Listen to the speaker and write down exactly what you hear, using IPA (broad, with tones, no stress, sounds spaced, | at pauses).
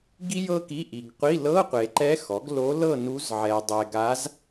ɡ i˥ j ɤ˥ k i˧˥˧ ʔ i˨ ɡ qʷ i˧˥˧ l ɤ˧˥˧ qʷ e˨ ǃ ɛ˧˥ x ɔ˩˥ ɡ l o˧˥ l ɤ˥˨ n u˧˥ z ʕ ɛ˨ dˤ ɛ˨ ɡ a˧˥ z